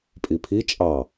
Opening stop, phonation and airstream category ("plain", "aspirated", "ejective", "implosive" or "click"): ejective